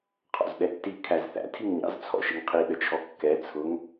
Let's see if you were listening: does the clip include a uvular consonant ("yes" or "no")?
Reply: yes